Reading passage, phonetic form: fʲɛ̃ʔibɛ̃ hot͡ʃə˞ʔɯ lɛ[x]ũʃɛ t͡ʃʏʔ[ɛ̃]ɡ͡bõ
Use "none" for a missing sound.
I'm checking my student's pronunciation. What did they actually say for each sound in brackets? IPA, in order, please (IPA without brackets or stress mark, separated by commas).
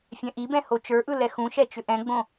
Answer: x, ɛ̃